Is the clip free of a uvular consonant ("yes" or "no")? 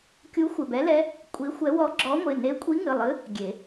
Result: yes